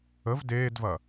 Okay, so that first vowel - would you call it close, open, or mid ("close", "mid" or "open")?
mid